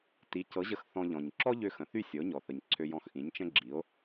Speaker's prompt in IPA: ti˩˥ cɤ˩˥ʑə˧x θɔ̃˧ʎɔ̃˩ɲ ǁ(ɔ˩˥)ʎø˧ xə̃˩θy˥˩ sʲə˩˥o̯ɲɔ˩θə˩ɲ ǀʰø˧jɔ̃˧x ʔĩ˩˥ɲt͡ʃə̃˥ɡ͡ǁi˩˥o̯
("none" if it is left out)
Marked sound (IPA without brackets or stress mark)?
ɔ˥